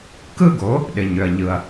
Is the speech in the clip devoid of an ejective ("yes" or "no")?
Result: yes